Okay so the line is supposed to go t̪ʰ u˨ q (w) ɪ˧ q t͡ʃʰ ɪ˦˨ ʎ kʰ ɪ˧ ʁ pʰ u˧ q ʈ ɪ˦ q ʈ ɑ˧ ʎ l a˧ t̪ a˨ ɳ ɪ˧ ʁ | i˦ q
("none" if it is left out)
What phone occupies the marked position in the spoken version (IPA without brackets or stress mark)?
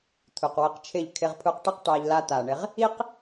w